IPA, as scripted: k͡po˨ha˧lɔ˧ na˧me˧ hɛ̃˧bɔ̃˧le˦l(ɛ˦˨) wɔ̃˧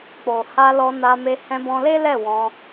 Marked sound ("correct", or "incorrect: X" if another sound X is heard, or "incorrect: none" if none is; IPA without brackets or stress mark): correct